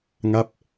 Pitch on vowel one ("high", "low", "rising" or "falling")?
falling